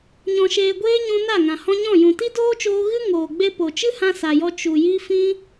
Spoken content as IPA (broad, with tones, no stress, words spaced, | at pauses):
ɲɔ̃˨ʃeː˨ɡʷeː˧ ɲũ˧na˦˨ŋã˨ hɔ̃˧ɲɔ̃˦˨ jũ˨ti˦doː˦t͡ʃoː˧ ɣɨ˦ ŋoː˨ɡ͡be˧ po˨t͡ʃɨ˦hã˧ sa˨jɔ˧ t͡ʃu˨ji˧ fĩ˧